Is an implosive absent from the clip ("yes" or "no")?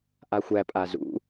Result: yes